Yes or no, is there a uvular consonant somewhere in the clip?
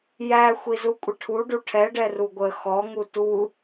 no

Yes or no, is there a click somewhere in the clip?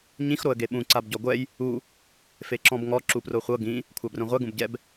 yes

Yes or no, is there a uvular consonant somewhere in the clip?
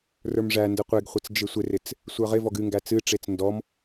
yes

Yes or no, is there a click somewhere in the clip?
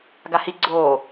yes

